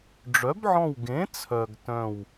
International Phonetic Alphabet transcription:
ɖ͡ʐ œ˨˥ b ʕ ɔ̃˦˨ w ɡ ẽ˨˥ t͡sʰ œ˨ ɡ t œ̃˦˨ w

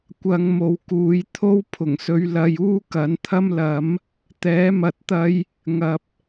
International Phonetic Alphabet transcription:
kʷ ɐ˧ ŋ m o˨ w k uː˨˧ j t̪ʰ o˥ w pʰ ʊ˨˩ ŋ s ɵ˧ ɥ l ɐ˧ j uː˥ k ɐ˨˥ n t̪ʰ ɐ˥ m l ɐ˨˥ m | t̪ ɛː˨˥ m ɐ˧ t̚ t̪ ɐ˥ j | ŋ ɐ˨ p̚

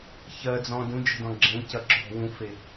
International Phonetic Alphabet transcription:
ç ɜ d͡z ɔ̃ d ũ d͡ʒ ə̤ d ɔ̃ ɡ͡ǁ ẽ c ɐ ǁ ɔ̤ w ũ f e

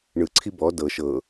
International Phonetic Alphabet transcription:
ɳ ɯ ǀʰ i b ɔ d ɤ ʃ ɤ

